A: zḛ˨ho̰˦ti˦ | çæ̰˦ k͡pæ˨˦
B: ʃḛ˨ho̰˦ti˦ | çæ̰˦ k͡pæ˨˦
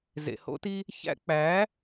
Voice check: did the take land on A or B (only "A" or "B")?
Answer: A